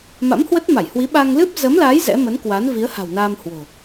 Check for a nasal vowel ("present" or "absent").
absent